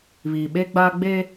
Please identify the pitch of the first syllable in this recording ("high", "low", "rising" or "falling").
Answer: low